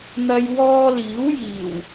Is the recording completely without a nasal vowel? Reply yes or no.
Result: yes